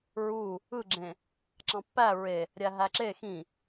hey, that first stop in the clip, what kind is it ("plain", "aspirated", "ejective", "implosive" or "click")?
click